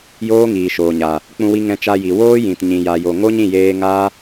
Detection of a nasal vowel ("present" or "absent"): present